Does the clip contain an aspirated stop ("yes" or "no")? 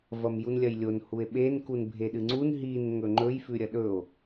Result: no